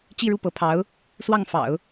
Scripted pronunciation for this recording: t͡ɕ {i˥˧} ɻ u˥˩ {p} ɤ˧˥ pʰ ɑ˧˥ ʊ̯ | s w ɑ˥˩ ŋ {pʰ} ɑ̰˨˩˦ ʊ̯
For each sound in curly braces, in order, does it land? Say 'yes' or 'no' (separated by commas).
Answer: yes, yes, no